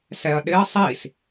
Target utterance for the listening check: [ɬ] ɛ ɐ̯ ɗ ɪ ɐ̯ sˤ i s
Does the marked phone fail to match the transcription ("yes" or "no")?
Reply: yes